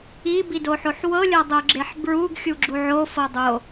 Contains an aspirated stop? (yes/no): no